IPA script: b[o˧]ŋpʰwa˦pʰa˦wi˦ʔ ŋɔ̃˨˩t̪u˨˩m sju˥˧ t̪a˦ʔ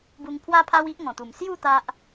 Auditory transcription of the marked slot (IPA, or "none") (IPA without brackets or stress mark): u˧